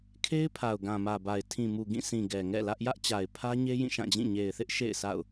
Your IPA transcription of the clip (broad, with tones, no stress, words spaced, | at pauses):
kʰe˦ɪ̯pʰa˨ʊ̯ ɡã˨mä˨ba˨ɪ̯ tʰĩ˨mu˨ɡĩ˦˨ sĩ˨ ɡɛ˨ŋɛ̰˦˨lä˦ʔ jä˦ʔt͡ɕa˨ɪ̯pʰä˦ɲe˦ jĩ˦˨ʃã˦˨d͡ʑĩ˦˨ ɲe˨ɪ̯θɪ˦ʔ ʃḛ˦˨ɪ̯sa̰˦˨ʊ̯